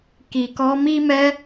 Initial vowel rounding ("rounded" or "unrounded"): unrounded